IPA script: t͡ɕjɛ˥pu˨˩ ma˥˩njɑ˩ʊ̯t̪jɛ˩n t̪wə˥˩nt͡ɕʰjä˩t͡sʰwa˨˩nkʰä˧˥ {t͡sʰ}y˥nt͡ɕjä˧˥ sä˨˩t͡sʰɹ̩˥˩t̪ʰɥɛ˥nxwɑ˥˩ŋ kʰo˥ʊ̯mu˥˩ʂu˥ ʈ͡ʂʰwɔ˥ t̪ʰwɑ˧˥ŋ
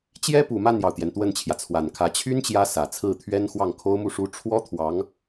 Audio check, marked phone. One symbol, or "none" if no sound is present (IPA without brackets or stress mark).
t͡ɕʰ